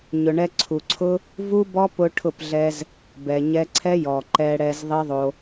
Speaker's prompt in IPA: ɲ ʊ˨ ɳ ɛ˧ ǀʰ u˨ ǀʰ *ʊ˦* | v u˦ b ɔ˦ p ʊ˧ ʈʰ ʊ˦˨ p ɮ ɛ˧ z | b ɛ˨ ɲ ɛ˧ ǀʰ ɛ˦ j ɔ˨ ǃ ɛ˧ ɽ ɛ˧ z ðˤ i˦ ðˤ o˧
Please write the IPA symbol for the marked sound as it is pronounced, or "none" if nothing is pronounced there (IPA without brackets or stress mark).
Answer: ʊ˦